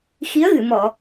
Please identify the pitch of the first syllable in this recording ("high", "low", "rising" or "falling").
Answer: rising